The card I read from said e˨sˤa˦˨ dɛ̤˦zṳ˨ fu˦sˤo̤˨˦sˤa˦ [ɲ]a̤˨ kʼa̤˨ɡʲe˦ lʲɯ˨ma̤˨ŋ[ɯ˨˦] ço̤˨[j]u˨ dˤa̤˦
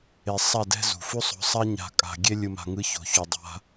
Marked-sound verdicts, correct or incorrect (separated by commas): correct, correct, incorrect